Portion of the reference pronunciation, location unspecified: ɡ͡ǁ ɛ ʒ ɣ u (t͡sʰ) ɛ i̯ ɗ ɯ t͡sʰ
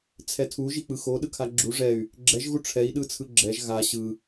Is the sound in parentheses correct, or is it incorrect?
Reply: incorrect